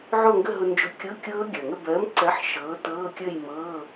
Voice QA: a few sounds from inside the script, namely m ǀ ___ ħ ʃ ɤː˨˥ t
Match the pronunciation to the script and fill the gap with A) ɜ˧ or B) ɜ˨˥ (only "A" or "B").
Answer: B